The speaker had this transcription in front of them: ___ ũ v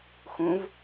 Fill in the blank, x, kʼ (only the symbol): x